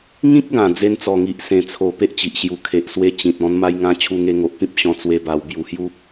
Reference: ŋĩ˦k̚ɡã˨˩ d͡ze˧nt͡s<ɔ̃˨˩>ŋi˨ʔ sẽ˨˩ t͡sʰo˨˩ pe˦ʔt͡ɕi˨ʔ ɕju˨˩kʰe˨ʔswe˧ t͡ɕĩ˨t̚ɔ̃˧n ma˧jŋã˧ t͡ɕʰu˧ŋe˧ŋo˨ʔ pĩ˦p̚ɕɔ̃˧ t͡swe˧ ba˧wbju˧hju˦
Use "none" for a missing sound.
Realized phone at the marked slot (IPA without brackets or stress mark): ɔ˨˩